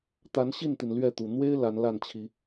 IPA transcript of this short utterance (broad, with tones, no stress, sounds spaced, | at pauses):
t̪ a˨˦ n ɕ i˥˨ n t̪ i˩ n l ɥ ɛ˥˨ t̪ u˨˩ n̪ w e˦ ɪ̯ l a˨˦ n l a˥˨ n t͡ɕʰ i˨˦